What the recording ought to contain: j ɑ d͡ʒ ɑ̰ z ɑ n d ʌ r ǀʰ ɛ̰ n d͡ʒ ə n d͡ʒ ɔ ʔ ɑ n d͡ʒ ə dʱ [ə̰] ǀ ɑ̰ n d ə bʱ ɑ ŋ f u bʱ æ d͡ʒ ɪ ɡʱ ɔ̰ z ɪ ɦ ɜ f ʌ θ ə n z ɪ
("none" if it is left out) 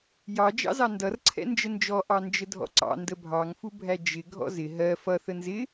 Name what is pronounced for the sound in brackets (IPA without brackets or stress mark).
ɔ̰